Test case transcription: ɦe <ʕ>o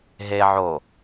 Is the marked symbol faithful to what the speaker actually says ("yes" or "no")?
yes